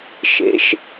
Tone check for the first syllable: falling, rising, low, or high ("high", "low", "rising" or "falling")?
rising